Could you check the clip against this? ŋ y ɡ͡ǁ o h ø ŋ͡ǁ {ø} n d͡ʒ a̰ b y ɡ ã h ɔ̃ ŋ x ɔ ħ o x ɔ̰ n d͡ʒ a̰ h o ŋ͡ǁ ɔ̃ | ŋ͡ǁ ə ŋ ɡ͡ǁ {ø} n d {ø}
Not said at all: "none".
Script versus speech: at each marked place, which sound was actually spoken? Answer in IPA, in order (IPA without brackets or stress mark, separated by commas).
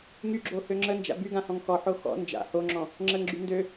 ə, y, ø